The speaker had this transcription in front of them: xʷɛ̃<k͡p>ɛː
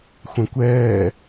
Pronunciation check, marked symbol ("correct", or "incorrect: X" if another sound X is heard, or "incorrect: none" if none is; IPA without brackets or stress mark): incorrect: kʷ